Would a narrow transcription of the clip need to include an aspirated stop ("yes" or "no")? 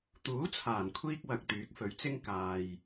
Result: yes